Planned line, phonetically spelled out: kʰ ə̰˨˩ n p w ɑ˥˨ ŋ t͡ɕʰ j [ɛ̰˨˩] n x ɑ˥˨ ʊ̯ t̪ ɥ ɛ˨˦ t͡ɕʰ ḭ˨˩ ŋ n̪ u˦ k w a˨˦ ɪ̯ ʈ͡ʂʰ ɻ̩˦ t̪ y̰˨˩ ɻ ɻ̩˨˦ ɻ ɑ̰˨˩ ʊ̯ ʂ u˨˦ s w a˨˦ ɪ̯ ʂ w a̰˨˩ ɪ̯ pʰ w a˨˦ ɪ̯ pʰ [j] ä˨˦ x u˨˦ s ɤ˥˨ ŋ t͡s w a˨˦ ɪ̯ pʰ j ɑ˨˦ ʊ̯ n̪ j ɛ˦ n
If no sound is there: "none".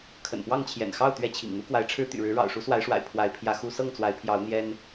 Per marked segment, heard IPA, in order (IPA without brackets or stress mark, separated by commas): ɛ̰˨˩, j